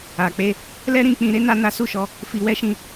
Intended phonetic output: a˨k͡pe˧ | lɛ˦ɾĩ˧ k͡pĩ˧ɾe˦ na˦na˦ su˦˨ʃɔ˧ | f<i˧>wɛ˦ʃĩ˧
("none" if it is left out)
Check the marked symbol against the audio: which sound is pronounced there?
i˧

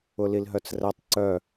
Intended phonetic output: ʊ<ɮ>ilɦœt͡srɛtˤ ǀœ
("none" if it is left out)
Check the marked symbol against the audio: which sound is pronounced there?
l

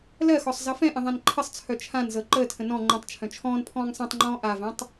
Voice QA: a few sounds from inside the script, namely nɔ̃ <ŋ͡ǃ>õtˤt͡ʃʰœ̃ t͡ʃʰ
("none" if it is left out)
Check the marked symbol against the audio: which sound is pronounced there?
ŋ͡ǃ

